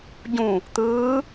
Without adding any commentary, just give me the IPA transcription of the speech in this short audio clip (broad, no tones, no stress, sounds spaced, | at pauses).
ɟ ũ | t̪ ɯː